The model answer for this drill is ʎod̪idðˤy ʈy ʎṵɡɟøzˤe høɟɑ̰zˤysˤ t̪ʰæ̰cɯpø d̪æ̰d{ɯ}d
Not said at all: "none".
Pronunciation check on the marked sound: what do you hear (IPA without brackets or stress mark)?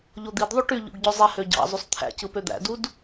u